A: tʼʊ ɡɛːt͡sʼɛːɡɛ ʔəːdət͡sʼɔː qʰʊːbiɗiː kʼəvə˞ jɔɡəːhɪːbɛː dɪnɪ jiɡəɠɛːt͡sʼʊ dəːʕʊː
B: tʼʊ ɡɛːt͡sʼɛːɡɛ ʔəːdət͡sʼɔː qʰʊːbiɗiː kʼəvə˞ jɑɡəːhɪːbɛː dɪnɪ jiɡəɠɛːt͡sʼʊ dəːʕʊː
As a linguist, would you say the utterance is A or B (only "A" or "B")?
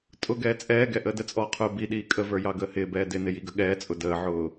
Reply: B